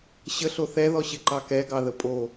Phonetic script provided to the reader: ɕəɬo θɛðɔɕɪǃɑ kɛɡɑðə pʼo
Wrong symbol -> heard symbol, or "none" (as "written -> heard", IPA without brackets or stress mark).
none